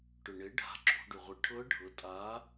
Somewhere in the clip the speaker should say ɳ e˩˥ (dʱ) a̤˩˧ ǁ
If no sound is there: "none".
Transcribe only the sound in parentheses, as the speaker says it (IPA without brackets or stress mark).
ɖʱ